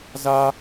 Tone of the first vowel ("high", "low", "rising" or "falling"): high